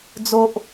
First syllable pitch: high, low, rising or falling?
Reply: low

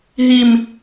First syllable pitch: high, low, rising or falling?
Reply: low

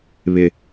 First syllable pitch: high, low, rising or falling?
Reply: high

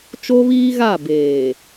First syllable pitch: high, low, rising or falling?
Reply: high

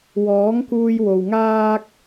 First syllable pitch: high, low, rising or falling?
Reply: rising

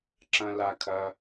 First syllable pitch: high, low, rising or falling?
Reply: high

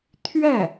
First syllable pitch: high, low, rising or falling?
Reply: falling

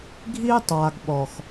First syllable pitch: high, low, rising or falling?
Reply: high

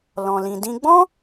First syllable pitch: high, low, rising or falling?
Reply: low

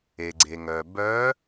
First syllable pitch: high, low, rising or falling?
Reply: low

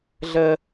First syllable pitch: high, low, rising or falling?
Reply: high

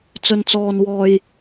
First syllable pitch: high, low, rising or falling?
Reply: low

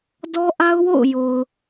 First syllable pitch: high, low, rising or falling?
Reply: high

